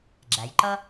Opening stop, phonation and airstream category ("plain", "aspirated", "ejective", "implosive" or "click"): click